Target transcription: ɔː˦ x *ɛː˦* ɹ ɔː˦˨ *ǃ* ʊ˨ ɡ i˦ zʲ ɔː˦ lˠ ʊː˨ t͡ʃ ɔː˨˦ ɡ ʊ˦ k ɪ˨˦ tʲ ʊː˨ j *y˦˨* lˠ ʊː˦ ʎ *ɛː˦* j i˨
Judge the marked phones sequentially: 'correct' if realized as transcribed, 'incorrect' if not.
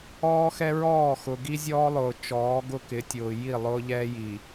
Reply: incorrect: ɛ˦, incorrect: x, incorrect: i˦˨, correct

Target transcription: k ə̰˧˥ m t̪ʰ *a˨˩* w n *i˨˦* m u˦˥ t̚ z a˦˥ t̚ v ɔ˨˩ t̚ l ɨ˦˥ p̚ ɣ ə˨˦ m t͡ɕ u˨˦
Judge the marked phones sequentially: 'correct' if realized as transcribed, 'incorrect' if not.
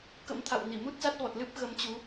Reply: incorrect: a̰˧˨, incorrect: i˧˩

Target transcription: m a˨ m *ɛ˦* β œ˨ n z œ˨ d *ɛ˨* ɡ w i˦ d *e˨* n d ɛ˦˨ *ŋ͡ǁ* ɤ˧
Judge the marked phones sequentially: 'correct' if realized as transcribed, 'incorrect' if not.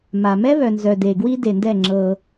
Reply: correct, incorrect: e˨, correct, correct

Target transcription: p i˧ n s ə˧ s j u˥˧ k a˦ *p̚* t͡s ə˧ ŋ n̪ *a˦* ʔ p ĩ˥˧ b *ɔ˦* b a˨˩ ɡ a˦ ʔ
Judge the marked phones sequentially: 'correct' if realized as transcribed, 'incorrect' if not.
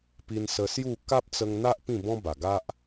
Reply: correct, correct, incorrect: ɔ̃˦

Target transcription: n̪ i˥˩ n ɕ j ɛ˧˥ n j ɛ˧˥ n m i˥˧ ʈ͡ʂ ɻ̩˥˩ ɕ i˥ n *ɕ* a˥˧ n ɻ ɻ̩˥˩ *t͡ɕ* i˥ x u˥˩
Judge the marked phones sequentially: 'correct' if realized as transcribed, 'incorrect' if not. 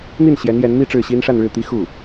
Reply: incorrect: ʂ, incorrect: t̪

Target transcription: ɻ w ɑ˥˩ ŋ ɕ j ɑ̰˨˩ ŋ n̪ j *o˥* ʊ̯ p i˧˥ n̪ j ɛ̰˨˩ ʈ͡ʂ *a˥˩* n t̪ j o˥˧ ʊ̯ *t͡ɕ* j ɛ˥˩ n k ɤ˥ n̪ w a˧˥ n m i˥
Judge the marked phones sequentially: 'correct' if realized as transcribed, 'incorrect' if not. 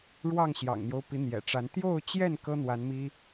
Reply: incorrect: o˦, incorrect: a˧˥, correct

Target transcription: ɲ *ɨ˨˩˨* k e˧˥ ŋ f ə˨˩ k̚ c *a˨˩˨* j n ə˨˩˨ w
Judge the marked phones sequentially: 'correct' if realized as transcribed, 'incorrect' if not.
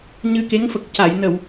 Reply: incorrect: ɨ˧, correct

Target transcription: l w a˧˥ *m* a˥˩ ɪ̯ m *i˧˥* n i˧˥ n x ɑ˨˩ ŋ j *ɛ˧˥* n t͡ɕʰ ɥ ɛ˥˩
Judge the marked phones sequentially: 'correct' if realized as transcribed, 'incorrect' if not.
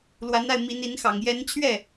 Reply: incorrect: n, correct, correct

